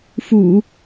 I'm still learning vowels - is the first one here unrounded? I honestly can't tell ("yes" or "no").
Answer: no